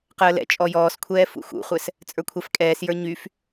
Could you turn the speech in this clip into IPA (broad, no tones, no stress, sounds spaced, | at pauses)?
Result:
q əː l ɛ̰ t͡ʃʼ ɔ j ɔː s kʷʰ ɛː f ṵ x ṵ χʷ ɛ s | t͡sʼ ə˞ kʷʰ ɛ f kʼ ɛː s j ə˞ ɲ y f